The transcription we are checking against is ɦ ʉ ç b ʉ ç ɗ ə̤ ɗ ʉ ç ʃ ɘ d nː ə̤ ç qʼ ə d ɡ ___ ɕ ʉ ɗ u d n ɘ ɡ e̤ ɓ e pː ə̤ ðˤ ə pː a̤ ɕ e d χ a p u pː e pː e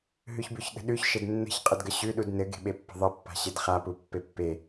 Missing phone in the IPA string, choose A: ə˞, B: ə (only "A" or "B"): B